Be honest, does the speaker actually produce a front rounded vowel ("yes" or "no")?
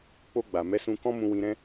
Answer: no